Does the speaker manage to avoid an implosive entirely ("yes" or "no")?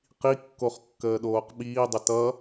no